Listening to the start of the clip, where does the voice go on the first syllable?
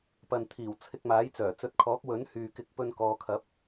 low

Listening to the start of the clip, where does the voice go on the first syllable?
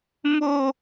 high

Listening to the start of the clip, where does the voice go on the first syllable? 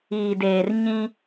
low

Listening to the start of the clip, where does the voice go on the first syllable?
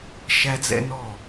high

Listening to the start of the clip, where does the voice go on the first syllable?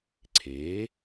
rising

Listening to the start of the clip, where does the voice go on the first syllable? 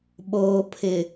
low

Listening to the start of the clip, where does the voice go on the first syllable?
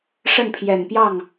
falling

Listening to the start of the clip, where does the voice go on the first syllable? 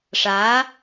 rising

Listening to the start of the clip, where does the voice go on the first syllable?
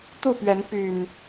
falling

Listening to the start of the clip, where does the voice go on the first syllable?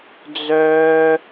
high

